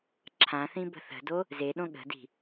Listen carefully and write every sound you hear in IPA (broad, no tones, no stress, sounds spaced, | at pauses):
ǁʰ ã θ ĩ b ə̤ θ ə̤ d o | z e ɗ õ ɠ ə̤ d i̤